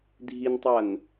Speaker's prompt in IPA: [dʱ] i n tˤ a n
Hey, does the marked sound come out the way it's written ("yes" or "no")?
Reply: yes